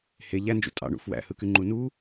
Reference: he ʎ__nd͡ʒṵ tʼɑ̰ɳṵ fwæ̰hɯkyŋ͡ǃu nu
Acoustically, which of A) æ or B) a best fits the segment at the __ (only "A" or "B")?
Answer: A